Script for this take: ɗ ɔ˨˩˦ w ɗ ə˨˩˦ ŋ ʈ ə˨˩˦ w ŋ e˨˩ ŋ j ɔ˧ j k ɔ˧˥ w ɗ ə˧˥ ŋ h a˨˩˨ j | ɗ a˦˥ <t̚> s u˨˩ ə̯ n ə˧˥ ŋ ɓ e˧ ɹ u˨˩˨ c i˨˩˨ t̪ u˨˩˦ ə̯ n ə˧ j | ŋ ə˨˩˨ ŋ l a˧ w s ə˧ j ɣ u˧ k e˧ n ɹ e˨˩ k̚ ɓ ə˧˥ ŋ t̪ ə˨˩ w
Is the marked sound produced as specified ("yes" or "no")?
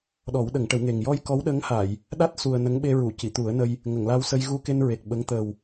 yes